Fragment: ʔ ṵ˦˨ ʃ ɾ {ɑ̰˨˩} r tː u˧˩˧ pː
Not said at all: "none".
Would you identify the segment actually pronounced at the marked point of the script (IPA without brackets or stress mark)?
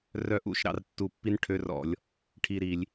ɑ̰˦˨